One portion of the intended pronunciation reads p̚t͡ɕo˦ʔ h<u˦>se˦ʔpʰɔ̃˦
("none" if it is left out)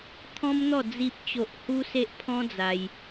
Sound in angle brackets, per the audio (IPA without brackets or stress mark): u˦